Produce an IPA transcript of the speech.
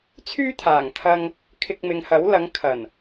t͡sʰ yː˥ t̪ʰ aː˨˩ ŋ t̪ʰ ɐ˧ ŋ | kʰ ɪ˧ k̚ m ɪ˨˧ ŋ h ɐ˨˥ w l ɐ˨˧ ŋ kʰ ɐ˨˩ n

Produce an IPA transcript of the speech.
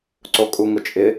ǀ o kʼ u ŋ ʊ t͡ʃʼ ɪ

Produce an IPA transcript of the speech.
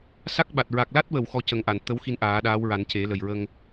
s a˦˥ k̚ ɓ a˨˩ t̚ ɹ a˨˩ k̚ l a˦˥ t̚ w ə˨˩˨ w x ɔ˧˥ c ə˨˩˦ ŋ ʔ a˨˩˨ n t̪ ə˧˥ w x i˧ n ʔ aː˨˩˦ ɗ aː˧˥ w ɹ a˨˩˦ n c e˨˩˦ l ə˨˩ j ɹ ə˧ ŋ

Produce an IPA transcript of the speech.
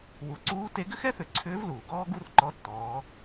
w u˩˧ ǀ uː˧˥ t e˧˥ ɡ ʏ˥ x ɛ˥ θ ʏ˩˧ ǀʰ ʏː˧˥ v l uː˩ ɡ ɔː˥ ɡ u˥ r ǃ ɔ˧˥ tː ɔː˩˧

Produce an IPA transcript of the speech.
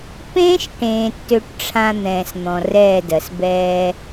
p ẽː˦ ʃ ʈ ẽː˨ tː ø˦ ʈ ʈ͡ʂʰ ã˦ n̪ ɛ̃ː˨ s n̪ ɔ̃˨ r ɛː˦˨ d ɜ˨ s b ɛː˦

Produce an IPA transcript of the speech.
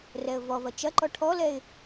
r ɛ ə̯ v ɔ v ɐ t͡ʃ ɐ ǃ ɔ ʈʰ ɔ l ɛ ɪ̯

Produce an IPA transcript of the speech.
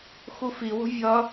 x u f i w o̤ vʲ ʌ

